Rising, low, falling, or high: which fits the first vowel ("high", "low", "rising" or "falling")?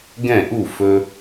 falling